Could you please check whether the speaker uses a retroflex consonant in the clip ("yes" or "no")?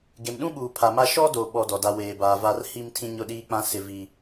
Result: no